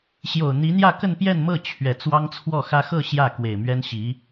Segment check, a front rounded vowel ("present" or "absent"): absent